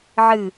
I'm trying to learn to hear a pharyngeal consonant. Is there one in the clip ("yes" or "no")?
yes